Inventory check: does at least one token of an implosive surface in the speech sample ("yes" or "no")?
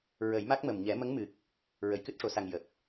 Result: no